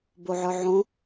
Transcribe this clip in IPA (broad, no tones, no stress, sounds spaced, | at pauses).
b o ʕ ə˞ ʕ õ